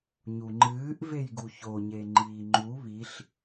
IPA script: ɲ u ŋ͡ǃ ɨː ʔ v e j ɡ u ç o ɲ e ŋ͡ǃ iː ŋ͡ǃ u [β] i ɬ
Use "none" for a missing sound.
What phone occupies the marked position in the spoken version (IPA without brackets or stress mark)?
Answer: β